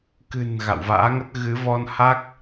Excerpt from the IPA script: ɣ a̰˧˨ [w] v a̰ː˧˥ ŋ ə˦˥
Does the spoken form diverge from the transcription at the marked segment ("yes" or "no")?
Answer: no